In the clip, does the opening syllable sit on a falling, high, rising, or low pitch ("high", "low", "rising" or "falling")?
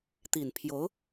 low